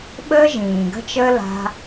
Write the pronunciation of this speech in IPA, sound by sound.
ɓ əː˦ ʒ ĩː˨ ɡ ə̤˦ t͡ʃ əː˦ l a̤˧

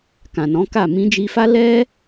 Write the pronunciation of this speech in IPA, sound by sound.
k ã˨ n ɔ̃˨˦ k a˦˨ m ĩ˧ d͡ʒ i˧ f a˦ l ɛ˦

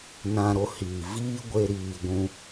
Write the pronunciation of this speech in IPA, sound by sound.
n ã˧ ɾ o˧ h iː˨ v iː˦ ɡʷ e˧ ɾ iː˨ ɡʷ ũ˧

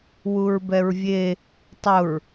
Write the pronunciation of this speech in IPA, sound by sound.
w u ɹ b ɛ ɹ vʲ e | tˤ ʊ ɹ

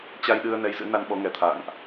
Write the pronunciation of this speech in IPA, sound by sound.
t͡ɕ a˧ j ɗ ɨ˧ ə̯ n ɛ˨˦ j z ɨ̰˧˥ n a˧ n ɓ ɔ˨˦ ŋ ɛ˧˩ t̪ʰ a̰ː˧˨ ŋ ʔ

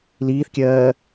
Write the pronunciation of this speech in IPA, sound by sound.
l iː θ kʲ ɜː

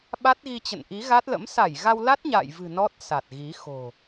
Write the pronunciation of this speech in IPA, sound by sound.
ɓ a˦˥ t̚ ɣ i˧ t͡ɕ ə̰˧˨ n ʔ i˨˦ ɣ a˦˥ t̚ l ə̰˧˥ m s a˧˩ j ɣ a˧ w l a˦˥ t̚ ɲ a̰ː˧˨ j v ɨ̤˨˩ n ɔ˦˥ t̚ s a˨˩ t̚ ɣ i˨˦ x o̤˨˩

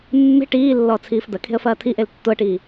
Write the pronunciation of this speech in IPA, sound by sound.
mː e̤ ʈ iː lː ɔː t͡sʰ iː f d̪ ɐ kʰ e̤ ə̯ f ɐː t̪ʰ i ʔ e l tː o ə̯ ʈ iː

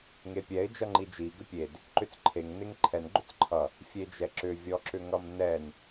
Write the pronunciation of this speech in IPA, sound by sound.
ŋ e pʲ ɛ ɪ̯ d͡ʒ ʌ ŋ͡ǃ i d͡ʒ i ɡ ʏ pʲ e d | ǃ ʏ t͡s ǃʰ e ŋ n e ŋ ǃʰ ɛ n ɡ͡ǃ ʏ t͡s ǃʰ ʌ | fʲ e d͡ʒ ɛ ǁ ʏ vʲ ɔ ǁ ʏ ŋ ʌ m n ɛ n

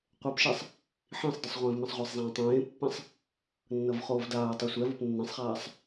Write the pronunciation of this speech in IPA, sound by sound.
qʷ ɛ p ʃ ɛ sˤ | ħ ĩ sˤ d ɯ sˤ ʁʷ ẽː v m ẽ sˤ ʁʷ ɛ sˤ zˤ ẽː tˤ ẽː pː ẽ sˤ | nː ʌ v χ oː v d aː tˤ ɯ sʷ ɛ v o p nː ẽ sˤ χ aː sˤ

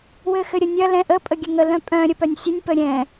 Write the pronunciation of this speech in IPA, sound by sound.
w ɘ x ɘ ɾʲ ə nʲ ɐ l ɛ̃ ʔ ə pʼ ə ɡʲ ɘ ŋ ə l œ̃ pʼ œ̃ ɾʲ ə p œ nʲ sʲ ɘ nʲ p ə ɾʲ ɛ̃

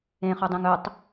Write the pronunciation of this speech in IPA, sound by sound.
ẽ χ ʊ dˤ ĩ ŋ ɵ tˤ

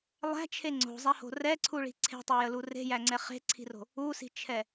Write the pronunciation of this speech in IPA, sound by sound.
lˠ æ̤ t͡ʃʰ e ŋ͡ǀ o̤ zˤ æ h o̤ r ɛ ǀʰ u ɭ i̤ ǀʰ e̤ tˤ e j ə l u r e̤ j æ ŋ͡ǀ ɛ χ e̤ ǀʰ i̤ r o̤ | u s i̤ t͡ʃʰ ɛ

